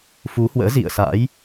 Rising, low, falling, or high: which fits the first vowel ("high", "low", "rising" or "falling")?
rising